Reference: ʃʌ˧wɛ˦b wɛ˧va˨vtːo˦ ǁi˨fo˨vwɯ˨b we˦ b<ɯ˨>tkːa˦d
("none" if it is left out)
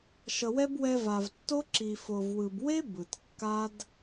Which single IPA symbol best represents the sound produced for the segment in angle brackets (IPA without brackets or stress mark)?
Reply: ɯ˨